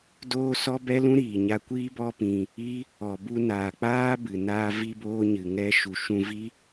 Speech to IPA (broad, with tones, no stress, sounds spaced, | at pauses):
d oː˦ s ɔ˦ b ɛ˦ l ũ˦ ɾ iː˨ ɲ a˧ kʷ iː˦ b ɔ˦ p ĩ˧ | i˦ | ɔ˨ b u˧ n aː˨ k͡p aː˦ b ɨ˨ n aː˧ v i˧ b oː˧ ɲ ɨ˨ ŋ ɛ˧ ʃ u˨ ʃ ũ˧ v i˦